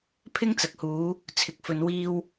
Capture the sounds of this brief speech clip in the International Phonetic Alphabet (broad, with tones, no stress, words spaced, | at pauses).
pʰɪ˥ŋt͡sɐ˨k̚huː˨˧ | t͡sʰɪ˧k̚fɵ˧nwiː˥w